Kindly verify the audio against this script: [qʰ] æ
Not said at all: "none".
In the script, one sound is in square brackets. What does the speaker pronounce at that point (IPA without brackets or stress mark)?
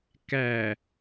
k